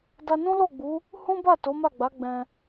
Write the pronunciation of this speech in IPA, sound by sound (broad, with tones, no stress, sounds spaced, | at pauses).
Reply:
d a˧ n ũ˦ l o˦˨ ɡ͡b u˨˦ | h ũ˦ b a˦˨ t o˨˦ m a˦˨ ɡ͡b a˨˦ ɡ͡b ɛ̃˧